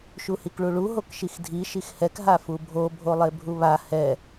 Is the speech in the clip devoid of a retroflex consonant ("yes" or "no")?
no